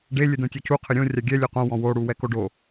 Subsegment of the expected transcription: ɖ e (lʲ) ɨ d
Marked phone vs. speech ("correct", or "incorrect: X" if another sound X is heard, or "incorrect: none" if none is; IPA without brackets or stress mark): correct